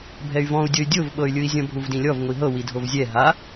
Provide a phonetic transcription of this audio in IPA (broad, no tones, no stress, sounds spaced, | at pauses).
bʱ ɛ y̯ v ɔ̃ u̯ dʲ ɤ y̯ dʲ o v ɓ ɤ y̯ lʲ ɯ i̯ zʲ ɔ̃ bʱ u v d ĩ lʲ ɔ v ŋʷ i ɦ ɤ w i dʱ o v zʲ ɛ ɦ a